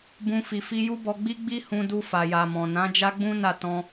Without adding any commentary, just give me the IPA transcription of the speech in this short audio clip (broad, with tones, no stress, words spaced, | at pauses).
bũ˧fi˨ fi˧ju˦bɔ˧ɡ͡bi˦ ɡ͡bi˦ hũ˧du˧ fa˨ja˨mɔ̃˨nã˨˦ d͡ʒa˦ɡ͡bũ˦na˦˨ tɔ̃˧